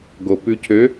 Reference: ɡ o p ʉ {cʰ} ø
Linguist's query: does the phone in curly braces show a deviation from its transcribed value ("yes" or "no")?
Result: no